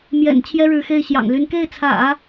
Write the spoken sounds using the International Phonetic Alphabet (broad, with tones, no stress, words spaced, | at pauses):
mjɛ̰˨˩n t͡ɕʰjɛ˥ɻɻ̩˧˥xe˥˩ɪ̯ ɕjɑ̰˨˩ŋly˧˥n ke˥˩ɪ̯t͡sʰä̰˨˩˦